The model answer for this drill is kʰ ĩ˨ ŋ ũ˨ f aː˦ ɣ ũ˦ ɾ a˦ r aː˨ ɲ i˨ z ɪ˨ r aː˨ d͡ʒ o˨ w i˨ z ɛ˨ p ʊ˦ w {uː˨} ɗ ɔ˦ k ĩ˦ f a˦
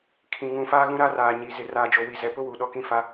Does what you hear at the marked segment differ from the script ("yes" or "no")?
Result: yes